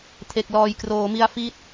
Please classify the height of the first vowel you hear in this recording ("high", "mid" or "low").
mid